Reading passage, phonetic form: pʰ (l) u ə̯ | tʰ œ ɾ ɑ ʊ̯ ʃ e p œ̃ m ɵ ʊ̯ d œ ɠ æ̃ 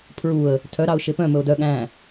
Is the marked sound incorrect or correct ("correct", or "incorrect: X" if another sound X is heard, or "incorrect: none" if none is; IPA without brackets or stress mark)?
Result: incorrect: ɹ